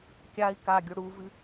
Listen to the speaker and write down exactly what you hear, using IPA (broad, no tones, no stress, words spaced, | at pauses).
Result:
kʲai̯ kaɡʲo ɽuvɨ